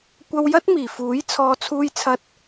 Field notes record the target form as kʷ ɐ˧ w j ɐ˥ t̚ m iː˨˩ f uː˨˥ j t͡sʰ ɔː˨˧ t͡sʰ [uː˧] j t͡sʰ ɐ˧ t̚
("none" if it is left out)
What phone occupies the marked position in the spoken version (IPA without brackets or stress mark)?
uː˧